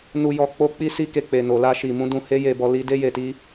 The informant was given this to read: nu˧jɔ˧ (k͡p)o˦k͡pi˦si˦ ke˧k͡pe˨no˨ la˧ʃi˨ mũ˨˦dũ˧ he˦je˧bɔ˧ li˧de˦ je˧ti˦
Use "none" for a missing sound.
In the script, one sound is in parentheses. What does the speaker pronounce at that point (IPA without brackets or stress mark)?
k͡p